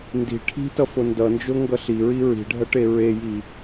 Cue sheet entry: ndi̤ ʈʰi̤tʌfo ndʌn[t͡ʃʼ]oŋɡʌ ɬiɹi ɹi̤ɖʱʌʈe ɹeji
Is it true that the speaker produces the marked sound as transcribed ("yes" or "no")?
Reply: no